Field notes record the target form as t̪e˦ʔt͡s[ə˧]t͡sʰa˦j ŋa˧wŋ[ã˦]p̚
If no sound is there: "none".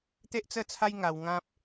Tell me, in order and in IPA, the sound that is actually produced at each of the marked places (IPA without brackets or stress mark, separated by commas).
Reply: ə˥˧, ã˦